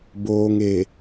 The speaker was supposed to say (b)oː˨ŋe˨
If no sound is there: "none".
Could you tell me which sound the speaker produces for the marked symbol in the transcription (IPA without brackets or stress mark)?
b